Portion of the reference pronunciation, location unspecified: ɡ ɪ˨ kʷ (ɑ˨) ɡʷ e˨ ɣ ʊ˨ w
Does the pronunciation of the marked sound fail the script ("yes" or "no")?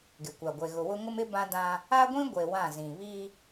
yes